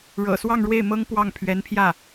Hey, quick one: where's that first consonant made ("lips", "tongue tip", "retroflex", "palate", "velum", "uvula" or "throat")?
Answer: retroflex